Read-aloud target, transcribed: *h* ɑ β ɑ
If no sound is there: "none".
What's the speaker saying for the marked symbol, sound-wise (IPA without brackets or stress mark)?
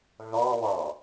ɣ